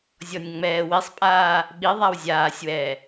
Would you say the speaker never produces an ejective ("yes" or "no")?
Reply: no